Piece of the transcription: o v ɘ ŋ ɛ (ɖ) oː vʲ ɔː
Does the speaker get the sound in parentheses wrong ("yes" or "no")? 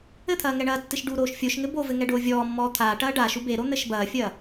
no